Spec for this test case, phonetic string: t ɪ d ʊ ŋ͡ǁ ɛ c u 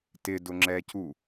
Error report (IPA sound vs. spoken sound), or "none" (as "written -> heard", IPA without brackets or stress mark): none